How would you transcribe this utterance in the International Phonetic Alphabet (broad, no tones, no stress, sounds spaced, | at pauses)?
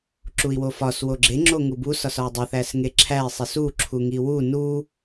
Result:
ǁ u i̯ w o f ɒ s w o ɡ͡ǁ e ŋ͡ǁ o ŋ u b u s ɒ s ɒ u̯ dˤ o θ æ s ŋ e ǁʰ æ i̯ sˤ i s u ǁʰ u ŋ i w u n u